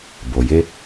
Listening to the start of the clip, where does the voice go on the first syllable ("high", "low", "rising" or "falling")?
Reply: low